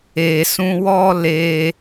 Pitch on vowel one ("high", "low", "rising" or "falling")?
low